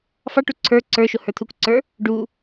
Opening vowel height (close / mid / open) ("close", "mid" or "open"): open